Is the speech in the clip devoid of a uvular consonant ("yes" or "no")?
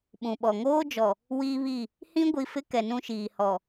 yes